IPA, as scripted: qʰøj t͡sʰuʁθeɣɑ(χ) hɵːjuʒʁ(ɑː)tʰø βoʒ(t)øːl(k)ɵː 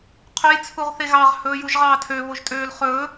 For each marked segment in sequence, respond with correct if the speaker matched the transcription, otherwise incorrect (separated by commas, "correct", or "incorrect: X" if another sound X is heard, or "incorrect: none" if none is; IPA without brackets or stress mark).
incorrect: ʁ, correct, incorrect: tʼ, incorrect: χ